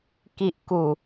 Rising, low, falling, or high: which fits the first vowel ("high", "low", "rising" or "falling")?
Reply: low